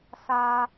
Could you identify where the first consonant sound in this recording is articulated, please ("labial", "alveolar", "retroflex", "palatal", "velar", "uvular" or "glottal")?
alveolar